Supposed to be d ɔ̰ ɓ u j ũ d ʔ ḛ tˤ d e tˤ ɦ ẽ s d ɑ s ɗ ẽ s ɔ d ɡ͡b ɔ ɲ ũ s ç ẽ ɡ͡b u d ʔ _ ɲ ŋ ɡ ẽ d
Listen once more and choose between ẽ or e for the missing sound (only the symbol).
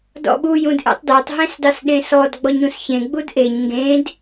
e